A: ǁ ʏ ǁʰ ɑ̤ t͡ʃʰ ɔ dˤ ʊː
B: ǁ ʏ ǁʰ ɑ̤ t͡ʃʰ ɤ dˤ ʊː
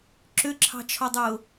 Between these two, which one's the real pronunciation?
A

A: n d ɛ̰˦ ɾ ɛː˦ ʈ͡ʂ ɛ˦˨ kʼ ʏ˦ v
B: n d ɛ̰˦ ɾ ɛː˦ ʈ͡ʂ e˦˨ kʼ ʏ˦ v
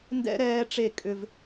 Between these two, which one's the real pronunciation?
B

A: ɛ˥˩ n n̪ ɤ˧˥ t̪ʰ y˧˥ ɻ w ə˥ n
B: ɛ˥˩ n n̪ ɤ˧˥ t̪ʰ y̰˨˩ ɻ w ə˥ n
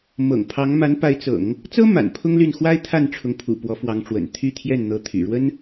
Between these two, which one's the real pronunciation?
B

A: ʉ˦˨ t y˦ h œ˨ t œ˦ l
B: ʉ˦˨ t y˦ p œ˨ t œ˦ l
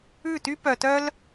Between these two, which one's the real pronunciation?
B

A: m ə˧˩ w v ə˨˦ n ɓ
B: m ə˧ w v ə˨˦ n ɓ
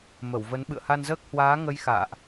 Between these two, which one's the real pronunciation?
A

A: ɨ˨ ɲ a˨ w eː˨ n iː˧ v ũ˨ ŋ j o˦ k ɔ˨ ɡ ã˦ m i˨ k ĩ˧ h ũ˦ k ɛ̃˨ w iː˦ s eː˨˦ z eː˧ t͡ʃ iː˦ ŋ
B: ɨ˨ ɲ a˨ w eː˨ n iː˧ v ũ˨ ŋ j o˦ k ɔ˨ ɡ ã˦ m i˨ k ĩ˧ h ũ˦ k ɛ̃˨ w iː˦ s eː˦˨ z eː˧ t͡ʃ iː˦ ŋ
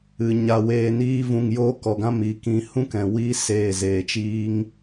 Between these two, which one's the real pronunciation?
B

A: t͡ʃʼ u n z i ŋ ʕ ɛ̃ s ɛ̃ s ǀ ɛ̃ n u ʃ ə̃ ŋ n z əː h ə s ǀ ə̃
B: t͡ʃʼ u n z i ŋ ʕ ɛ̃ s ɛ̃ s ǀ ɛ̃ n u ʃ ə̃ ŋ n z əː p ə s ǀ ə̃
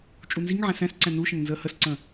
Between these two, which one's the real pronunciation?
A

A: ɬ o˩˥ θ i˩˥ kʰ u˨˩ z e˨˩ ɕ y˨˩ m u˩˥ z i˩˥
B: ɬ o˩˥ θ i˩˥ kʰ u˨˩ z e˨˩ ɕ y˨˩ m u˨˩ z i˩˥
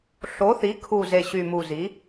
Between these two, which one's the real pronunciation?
B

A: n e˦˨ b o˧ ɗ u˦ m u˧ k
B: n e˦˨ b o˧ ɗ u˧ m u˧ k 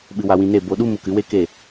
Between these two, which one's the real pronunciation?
A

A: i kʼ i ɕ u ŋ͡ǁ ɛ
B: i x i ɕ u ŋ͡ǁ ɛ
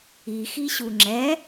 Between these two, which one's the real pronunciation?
B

